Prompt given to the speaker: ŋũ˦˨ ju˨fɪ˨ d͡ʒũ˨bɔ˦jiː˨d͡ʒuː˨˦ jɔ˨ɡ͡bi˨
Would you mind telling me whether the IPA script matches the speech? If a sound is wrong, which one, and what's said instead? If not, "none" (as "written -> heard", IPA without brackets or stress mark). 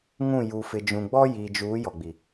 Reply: b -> ɡ͡b